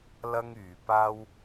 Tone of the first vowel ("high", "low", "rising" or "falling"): high